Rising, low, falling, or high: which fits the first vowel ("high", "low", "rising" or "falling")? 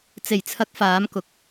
low